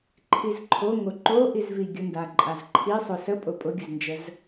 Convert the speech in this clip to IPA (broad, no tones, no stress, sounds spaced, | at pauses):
ǃʰ i z ǃʰ o ŋ o ǃ o ʔ i z v i ɡʲ ʊ n d a ǃʼ a z ǃʰ i sˤ o s ə pʼ ʊ pʼ ʊ ɡʲ ʊ z n d͡ʒ ə z